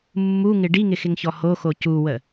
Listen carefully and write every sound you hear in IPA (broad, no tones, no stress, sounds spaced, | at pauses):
mː u ŋ ɪ ɖ i ŋ ɪ x ɪ ŋ ç ɔ h o x o c u w ə